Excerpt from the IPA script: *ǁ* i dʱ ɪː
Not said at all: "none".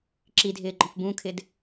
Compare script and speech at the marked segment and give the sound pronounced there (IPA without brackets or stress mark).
ǁ